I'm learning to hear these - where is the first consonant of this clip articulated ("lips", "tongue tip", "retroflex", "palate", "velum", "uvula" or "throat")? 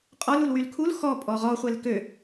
uvula